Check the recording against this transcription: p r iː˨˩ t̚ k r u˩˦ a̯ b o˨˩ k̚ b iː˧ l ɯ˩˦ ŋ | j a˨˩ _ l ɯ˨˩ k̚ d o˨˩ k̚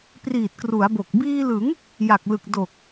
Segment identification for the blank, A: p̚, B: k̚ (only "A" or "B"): B